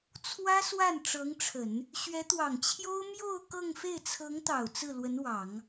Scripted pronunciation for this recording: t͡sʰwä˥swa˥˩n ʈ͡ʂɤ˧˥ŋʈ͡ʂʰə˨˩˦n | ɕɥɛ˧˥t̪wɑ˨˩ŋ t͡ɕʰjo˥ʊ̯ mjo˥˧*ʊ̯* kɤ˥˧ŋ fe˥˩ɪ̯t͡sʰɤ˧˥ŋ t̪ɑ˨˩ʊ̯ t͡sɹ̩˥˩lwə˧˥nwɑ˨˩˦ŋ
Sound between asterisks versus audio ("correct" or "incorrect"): correct